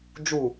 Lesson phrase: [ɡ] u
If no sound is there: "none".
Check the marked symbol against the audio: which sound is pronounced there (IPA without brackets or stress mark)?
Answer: d͡ʒ